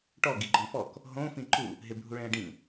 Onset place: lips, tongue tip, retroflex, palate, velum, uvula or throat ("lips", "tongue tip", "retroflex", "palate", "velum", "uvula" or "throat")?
retroflex